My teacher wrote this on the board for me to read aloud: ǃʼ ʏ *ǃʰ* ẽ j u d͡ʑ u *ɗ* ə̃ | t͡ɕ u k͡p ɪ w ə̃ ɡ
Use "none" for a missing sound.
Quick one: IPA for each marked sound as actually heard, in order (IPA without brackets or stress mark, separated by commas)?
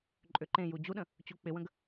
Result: ǃ, ɗ